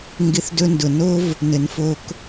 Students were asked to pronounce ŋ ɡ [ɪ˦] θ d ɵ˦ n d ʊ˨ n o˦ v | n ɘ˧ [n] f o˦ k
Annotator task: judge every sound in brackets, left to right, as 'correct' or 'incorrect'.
correct, correct

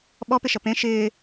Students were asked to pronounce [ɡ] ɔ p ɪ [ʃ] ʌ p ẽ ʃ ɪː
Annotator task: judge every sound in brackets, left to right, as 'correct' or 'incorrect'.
incorrect: ɓ, correct

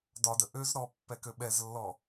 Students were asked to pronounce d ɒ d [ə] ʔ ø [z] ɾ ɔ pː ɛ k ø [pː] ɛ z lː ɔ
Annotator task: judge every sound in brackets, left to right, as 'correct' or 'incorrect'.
correct, correct, incorrect: ɓ

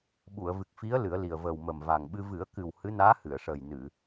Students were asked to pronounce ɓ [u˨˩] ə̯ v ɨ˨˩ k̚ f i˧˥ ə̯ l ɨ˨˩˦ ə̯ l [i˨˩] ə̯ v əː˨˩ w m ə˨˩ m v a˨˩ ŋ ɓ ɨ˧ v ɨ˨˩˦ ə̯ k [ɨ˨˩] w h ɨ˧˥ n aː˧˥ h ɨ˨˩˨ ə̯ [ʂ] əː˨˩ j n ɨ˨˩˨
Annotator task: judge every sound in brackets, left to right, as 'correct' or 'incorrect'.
incorrect: u˨˩˨, correct, correct, correct

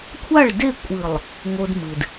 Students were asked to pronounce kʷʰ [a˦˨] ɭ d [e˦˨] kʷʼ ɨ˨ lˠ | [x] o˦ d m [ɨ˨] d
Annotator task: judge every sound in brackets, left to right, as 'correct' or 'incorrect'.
correct, correct, incorrect: ŋ, correct

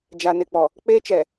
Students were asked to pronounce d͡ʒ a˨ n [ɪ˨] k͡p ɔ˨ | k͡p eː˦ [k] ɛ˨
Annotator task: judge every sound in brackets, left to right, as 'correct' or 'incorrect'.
correct, incorrect: t͡ʃ

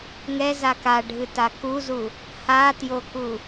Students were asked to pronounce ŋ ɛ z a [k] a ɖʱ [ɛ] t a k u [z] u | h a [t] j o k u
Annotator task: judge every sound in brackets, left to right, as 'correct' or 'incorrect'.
correct, incorrect: ɨ, correct, correct

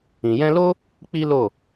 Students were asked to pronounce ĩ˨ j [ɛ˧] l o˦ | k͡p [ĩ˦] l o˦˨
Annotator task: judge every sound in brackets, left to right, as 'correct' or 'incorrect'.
incorrect: ɛ̃˧, incorrect: i˦

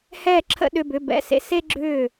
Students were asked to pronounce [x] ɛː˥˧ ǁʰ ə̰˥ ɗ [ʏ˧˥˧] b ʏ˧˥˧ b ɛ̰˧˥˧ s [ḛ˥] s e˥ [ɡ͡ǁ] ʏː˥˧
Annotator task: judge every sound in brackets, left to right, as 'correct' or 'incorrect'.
incorrect: h, correct, correct, correct

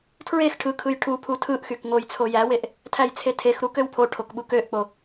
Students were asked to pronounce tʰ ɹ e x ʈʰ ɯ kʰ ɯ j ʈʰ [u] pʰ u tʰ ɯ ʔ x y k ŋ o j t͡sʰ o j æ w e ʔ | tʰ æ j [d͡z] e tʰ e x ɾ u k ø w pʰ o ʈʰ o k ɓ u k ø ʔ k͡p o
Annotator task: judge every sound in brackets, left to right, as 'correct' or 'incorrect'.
correct, incorrect: t͡sʰ

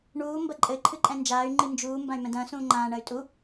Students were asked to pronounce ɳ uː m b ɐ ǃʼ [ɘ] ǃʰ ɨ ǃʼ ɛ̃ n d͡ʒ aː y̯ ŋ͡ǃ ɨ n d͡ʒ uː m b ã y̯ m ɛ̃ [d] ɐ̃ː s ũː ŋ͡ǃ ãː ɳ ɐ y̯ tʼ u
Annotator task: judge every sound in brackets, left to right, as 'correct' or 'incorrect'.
correct, correct

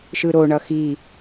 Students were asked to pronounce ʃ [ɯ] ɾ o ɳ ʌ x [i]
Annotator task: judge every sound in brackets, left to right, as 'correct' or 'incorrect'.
correct, correct

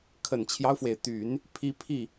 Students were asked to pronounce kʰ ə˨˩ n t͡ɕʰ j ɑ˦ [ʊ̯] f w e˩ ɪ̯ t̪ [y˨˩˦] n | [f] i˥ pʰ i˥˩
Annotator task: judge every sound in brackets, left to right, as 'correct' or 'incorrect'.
correct, correct, incorrect: pʰ

